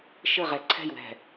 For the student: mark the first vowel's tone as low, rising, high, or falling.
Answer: falling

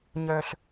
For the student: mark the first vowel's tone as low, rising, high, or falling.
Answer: low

